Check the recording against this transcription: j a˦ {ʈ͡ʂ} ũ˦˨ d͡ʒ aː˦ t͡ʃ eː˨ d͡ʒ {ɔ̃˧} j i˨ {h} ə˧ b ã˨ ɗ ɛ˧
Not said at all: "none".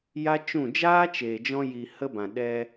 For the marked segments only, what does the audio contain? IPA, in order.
t͡ʃ, ɔ̃˧, h

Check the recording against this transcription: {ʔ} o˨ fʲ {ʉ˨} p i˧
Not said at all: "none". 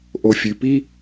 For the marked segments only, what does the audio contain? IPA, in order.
ʔ, ʉ˨

